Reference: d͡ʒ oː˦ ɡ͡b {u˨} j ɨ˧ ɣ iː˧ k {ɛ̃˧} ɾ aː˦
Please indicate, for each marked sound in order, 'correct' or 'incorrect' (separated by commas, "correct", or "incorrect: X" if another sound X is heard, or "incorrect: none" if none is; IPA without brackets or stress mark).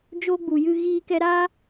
correct, incorrect: ɛ˧